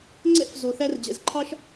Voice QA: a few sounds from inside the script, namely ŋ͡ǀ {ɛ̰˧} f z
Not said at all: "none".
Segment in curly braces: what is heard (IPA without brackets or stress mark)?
ɛ̰˥